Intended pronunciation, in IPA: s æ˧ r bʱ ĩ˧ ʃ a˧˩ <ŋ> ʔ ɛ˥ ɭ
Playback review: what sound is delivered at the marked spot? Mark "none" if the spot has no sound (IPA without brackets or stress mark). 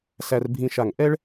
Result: ŋ